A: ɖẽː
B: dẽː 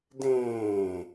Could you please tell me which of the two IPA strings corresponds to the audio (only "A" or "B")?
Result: B